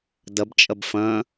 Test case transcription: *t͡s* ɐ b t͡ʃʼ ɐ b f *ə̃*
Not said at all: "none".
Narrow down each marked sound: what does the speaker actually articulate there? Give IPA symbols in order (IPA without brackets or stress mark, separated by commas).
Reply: d, ɐ̃